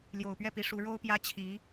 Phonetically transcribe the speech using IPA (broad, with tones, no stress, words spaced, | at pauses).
ljo˨˩ʊ̯pɥɛ˥˩pi˧˥ ʂu˧˥ ɻo˥ʊ̯pjä˥ t͡ɕʰi˧˥